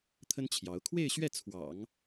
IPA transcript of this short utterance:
t̪ʰ ə˥ n t͡ɕʰ j ɑ˧˥ ʊ̯ kʰ w e˥˧ ɪ̯ ɕ ɥ ɛ˥˩ t͡sʰ w ɑ̰˨˩˦ ŋ

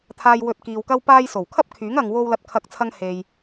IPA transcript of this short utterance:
t̪ʰ aː˧ j w ɵ˧ t̚ k iː˨ w k ɐ˥ w p aː˧ j s o˨˩ w kʰ ɐ˥ p̚ kʰ yː˨˥ ŋ ɐ˨ ŋ w o˧ w l ɐ˧ t̚ kʰ ɐ˧ k̚ t͡sʰ ɐ˧ ŋ h e˨ j

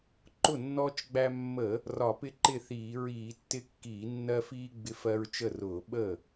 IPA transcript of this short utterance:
ǃ ʊ˥˩ nː ɔː˦ t͡ʃ ɡ͡b æ˦ mː ə˧˩˧ | r ɒ˧˩˧ p ɪ˦ ǃ ɪ˥˩ θ iː˧˩˧ ɹ iː˧˩˧ tː ɪ˦ kː iː˧˩˧ nː ɜ˦ f iː˦ ɡ͡b ɪ˦ f ɜ˦ ɹ t͡ʃ ə˥˩ r ʊː˧˩˧ ɓ ə˥˩

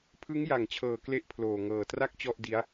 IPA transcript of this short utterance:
pʰ ɯ˦˥ ŋ j a˨˩ ŋ t͡ɕʰ ɤː˨˩ k l e˥˩ ʔ pʰ l oː˨˩ ŋ ɤː˨˩ t r a˥˩ k̚ t͡ɕ ɔ˥˩ ʔ d i˦˥ a̯

